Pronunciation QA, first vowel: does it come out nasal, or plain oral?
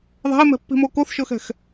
oral